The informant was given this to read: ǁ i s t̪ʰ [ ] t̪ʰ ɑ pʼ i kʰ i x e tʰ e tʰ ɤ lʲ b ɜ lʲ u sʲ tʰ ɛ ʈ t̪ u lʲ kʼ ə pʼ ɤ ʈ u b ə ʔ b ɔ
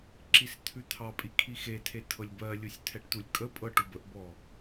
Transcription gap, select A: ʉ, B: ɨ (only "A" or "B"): A